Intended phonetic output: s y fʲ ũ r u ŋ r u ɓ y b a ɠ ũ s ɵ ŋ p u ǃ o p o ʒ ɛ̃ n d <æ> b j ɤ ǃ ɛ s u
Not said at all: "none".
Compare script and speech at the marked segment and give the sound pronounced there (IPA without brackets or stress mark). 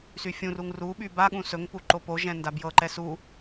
a